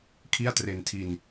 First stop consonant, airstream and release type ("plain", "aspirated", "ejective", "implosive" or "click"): aspirated